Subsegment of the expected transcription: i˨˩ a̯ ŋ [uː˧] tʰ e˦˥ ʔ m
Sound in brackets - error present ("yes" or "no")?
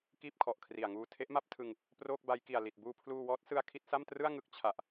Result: no